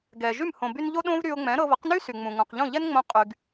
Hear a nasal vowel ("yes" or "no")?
yes